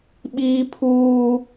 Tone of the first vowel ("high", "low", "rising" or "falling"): high